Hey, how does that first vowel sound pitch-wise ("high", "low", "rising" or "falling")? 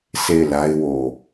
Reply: falling